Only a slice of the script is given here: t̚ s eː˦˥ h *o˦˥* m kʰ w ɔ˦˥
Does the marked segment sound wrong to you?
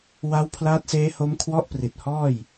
no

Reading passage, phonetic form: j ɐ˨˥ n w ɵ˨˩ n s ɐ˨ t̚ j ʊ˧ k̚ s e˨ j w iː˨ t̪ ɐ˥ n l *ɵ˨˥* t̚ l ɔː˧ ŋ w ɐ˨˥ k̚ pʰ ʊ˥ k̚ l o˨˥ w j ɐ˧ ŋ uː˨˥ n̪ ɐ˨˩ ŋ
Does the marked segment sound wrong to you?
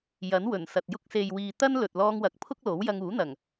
yes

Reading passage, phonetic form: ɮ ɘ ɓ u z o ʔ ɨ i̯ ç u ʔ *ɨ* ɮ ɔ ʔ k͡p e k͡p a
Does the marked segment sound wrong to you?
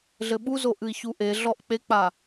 yes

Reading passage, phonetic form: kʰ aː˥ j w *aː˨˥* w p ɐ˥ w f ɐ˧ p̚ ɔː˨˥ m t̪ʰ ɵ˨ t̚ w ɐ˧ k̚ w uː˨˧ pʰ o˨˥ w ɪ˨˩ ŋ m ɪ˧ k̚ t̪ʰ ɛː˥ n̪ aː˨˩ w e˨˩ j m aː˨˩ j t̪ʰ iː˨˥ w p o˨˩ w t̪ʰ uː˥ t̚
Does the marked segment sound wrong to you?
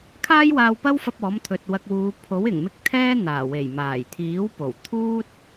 yes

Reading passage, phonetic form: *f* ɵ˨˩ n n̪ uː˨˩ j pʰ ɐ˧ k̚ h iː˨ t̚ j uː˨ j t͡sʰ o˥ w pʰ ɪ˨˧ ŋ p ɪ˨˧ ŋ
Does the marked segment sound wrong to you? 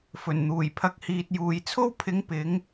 no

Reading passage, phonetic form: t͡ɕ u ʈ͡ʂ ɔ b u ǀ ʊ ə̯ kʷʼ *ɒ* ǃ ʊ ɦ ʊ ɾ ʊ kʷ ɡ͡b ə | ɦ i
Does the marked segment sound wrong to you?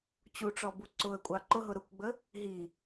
yes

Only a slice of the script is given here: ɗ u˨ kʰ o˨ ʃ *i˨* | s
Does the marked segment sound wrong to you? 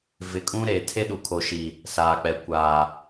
no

